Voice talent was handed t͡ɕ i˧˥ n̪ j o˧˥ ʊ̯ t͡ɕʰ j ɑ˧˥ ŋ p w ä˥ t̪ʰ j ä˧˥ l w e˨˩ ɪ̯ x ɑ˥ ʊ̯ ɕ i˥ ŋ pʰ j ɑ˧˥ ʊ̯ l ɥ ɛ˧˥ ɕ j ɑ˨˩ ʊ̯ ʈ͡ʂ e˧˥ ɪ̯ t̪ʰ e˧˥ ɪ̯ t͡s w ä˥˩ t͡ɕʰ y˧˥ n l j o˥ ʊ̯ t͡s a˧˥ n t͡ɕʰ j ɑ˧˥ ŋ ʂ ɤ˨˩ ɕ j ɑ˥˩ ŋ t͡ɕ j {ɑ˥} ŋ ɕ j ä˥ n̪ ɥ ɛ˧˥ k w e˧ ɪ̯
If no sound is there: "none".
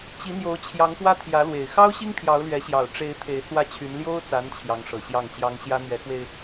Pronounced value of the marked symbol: ɑ˥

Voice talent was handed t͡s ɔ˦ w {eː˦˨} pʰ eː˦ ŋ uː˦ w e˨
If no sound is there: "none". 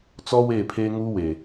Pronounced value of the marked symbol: eː˦˨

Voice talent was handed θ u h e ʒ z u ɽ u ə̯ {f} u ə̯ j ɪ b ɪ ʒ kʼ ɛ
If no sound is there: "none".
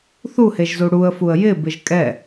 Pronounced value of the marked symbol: f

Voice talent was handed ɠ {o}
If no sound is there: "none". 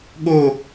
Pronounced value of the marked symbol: o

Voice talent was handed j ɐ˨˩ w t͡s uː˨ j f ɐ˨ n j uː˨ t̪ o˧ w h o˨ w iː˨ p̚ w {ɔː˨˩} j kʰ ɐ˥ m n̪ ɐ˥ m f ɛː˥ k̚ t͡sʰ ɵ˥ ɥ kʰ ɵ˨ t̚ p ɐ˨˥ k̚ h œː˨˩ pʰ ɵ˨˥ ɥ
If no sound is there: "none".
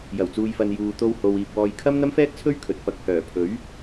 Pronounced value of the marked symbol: ɔː˧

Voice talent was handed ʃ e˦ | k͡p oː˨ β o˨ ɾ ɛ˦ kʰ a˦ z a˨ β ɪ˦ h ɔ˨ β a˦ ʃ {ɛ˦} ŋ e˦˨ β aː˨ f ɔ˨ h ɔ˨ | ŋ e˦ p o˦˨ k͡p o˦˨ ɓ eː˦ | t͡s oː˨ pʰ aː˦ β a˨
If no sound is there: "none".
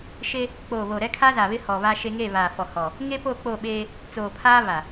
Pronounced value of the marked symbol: e˦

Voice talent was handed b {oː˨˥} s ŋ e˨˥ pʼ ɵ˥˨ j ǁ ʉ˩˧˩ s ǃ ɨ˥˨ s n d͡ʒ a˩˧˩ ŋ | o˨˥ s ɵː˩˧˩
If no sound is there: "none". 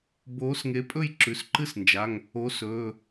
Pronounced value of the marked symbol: oː˨˥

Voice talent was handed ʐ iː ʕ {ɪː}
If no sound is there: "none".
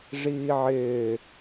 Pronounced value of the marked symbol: ɪː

